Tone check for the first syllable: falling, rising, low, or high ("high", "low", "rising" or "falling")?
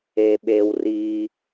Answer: low